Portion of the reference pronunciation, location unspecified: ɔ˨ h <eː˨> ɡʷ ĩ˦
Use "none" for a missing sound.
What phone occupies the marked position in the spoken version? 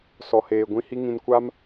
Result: eː˨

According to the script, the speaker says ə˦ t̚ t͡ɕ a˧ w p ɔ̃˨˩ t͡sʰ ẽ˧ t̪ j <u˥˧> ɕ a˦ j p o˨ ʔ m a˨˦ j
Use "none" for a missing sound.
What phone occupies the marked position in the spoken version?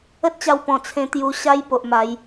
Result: u˧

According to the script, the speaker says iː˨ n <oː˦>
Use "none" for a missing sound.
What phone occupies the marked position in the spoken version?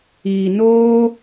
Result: oː˦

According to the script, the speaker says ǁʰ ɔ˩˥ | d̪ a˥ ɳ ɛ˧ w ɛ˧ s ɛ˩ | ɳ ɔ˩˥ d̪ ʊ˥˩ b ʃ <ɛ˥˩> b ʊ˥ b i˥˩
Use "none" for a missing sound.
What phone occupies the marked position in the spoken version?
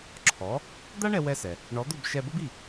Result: ɛ˧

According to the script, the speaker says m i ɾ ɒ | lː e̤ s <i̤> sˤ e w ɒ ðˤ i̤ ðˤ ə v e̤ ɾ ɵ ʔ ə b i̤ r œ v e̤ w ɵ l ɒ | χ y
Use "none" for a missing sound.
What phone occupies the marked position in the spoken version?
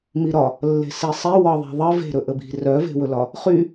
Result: i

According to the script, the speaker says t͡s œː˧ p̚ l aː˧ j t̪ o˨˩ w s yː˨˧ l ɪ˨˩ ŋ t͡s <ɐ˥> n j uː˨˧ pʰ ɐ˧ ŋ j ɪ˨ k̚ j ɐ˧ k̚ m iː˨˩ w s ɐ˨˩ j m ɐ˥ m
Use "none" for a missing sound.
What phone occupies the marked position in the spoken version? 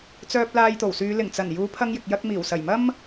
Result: ɐ˨˩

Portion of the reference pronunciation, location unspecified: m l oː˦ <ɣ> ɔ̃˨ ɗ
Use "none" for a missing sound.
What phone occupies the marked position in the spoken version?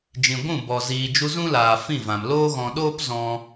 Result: ɣ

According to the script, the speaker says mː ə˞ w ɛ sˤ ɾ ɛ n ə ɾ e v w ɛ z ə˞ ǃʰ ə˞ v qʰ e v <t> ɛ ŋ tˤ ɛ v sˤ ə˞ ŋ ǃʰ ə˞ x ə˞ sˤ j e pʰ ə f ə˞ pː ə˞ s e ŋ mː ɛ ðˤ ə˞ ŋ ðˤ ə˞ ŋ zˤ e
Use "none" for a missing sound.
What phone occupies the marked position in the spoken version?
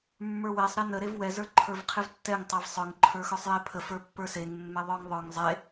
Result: tː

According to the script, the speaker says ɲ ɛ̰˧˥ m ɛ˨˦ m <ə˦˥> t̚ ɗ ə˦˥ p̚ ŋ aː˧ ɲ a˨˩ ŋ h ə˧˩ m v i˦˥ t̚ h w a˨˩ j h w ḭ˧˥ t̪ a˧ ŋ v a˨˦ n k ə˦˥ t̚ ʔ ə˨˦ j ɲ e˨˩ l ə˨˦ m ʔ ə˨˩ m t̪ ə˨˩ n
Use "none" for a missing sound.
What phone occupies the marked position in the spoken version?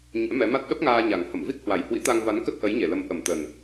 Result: a˦˥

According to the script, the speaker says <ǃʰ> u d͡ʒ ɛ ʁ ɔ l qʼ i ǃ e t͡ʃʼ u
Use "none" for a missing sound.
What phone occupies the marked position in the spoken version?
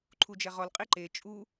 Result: ǃʰ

